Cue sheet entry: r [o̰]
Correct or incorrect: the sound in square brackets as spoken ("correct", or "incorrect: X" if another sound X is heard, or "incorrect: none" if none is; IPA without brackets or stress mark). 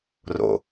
correct